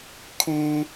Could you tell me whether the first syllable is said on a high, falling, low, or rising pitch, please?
low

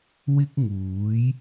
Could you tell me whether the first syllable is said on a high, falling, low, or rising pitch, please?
high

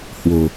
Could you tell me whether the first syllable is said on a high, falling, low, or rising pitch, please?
low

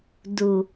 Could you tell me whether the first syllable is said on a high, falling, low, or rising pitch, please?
low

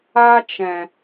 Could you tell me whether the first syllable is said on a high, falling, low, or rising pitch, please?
high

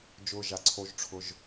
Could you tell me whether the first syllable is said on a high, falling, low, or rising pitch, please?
low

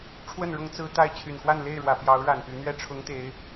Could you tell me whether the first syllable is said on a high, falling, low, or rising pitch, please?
falling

